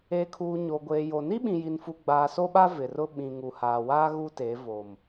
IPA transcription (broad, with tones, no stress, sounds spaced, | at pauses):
eː˨ kʰ uː˨ ɲ o˨ ɡʷ eː˨ j o˨ n i˦ ɓ ĩ˨ j i˨ n f u˨ ɡ͡b aː˨ s o˦ ɓ a˦ v ɪ˨ r ʊ˦ ɓ ĩ˨ ŋ u˨ h aː˨ w aː˦ ɣ u˦ t e˨˦ v o˨ m